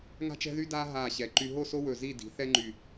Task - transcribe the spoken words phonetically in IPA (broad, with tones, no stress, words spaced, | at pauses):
ŋa̤˥t͡ʃɛ̤˥ðy˥daː˥ ɦaː˧˩ɕɛ˩˧ǃy˧ ɦo˥˧so˥wɵ˧˩ zi˥˧di̤˩˧ θɛ˥ŋ͡ǃy˧˩